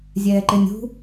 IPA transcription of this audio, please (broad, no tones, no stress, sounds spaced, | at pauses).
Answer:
zʲ ɛː ǃ ɪ nʲ ṳ